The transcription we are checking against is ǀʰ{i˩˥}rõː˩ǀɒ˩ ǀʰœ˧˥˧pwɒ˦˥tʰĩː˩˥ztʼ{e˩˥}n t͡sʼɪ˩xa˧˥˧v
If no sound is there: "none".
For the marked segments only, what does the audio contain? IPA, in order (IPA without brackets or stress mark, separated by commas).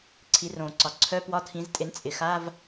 i˩˥, e˩˥